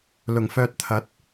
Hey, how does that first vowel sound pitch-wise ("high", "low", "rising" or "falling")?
low